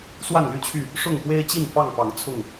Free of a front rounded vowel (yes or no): no